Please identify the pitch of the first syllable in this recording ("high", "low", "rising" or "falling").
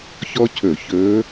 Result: high